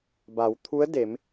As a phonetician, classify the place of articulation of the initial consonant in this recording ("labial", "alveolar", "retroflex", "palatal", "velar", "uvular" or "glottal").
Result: labial